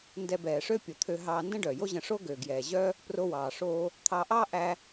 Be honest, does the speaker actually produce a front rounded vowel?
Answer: yes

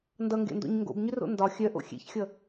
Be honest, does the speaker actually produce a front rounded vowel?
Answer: yes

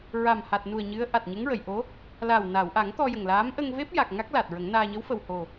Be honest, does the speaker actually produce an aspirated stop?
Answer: no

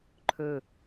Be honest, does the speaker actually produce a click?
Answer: yes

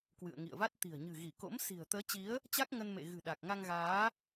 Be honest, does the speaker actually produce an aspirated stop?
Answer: no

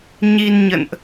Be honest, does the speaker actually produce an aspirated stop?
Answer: no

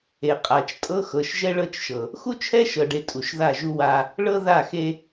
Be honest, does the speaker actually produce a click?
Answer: no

